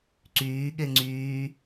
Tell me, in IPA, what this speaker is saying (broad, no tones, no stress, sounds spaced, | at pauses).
ǀ yː ɠ e ŋ͡ǀ yː